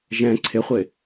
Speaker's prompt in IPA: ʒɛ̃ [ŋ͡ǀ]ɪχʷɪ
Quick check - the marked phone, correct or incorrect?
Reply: incorrect